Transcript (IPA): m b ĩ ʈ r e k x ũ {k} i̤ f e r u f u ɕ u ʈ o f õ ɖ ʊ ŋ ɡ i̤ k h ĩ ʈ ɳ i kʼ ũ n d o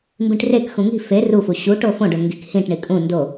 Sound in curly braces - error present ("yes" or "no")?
yes